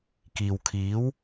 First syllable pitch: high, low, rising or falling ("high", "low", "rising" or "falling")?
low